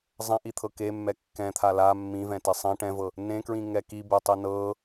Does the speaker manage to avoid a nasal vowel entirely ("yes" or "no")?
no